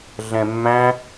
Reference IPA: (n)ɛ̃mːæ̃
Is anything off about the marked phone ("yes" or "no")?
yes